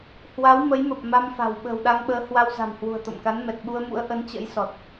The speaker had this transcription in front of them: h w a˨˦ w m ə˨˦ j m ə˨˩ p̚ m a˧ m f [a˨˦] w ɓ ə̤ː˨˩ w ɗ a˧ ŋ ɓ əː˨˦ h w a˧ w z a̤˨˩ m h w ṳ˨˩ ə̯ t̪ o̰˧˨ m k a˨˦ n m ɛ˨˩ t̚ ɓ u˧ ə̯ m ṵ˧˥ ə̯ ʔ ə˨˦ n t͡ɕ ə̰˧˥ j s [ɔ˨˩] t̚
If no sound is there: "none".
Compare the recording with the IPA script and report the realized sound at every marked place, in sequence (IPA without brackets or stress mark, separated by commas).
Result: a̤˨˩, ɔ˨˩